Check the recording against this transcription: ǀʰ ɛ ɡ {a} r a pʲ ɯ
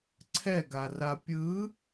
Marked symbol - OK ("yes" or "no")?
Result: yes